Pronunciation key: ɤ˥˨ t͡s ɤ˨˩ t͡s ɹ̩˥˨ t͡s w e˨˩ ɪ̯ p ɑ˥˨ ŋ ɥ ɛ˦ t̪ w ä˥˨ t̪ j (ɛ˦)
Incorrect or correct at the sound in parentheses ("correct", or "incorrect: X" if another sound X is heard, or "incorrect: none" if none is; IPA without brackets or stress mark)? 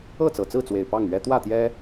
correct